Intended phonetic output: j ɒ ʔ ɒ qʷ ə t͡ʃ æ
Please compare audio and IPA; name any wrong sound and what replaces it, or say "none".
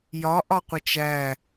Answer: none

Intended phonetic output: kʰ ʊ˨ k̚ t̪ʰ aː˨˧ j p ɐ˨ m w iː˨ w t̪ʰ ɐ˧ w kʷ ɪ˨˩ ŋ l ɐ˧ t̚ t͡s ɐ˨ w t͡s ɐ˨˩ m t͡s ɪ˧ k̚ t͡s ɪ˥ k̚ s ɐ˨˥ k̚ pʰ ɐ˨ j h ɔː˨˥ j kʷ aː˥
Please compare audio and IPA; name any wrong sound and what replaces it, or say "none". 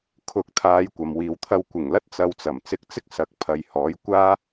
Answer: p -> kʷ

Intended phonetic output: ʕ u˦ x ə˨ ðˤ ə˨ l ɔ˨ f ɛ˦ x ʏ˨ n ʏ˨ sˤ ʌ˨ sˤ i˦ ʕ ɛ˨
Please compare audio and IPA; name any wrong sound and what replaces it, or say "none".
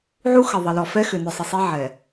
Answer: ʌ˨ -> ə˨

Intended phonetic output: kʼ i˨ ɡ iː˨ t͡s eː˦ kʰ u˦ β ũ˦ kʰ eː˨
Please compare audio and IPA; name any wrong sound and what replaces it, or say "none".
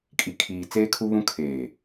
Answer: ɡ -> kʰ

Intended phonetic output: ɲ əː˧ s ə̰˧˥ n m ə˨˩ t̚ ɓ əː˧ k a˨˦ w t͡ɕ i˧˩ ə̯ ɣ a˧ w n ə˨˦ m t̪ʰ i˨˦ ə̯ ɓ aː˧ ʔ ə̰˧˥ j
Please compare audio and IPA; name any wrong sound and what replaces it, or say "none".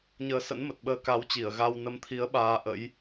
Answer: none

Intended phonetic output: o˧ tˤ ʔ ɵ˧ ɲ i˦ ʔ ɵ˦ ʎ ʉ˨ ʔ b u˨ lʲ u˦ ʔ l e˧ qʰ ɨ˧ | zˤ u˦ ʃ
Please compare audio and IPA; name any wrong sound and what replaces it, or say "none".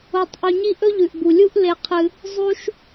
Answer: none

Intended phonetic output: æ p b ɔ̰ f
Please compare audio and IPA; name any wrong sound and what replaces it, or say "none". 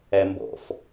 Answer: p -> m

